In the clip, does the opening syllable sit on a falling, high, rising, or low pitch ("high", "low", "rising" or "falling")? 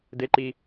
rising